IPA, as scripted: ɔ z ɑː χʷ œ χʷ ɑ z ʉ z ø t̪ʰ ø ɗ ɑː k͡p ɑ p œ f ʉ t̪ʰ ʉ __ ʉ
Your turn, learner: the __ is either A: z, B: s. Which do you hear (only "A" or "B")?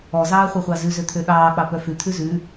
A